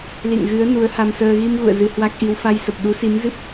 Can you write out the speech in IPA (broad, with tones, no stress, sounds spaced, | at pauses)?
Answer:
l ḭ˧˨ ŋ ɣ ɨ˨˦ ə̯ n u˨˦ ə̯ h a˧ m s əː˧ ɣ i˧ m ɣ ṵ˧˨ ə̯ z ɨ˧ h w a˦˥ k̚ ʔ i˧ w f a˧ j s ə˨˩ p̚ ɗ u˨˦ s i˨˦ m z ɨ˦˥ p̚